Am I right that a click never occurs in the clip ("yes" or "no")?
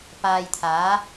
yes